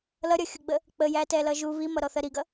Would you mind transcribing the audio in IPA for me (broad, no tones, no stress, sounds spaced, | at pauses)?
l ʌ ɾʲ ʌ xʲ ʊ ɡ͡b ə | k͡p ə j æ t ɛ l ʌ ʒ u β i m ʌ ɾ ɔ θ ɜ ɾ i ɡ ʌ